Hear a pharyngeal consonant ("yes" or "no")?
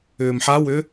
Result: yes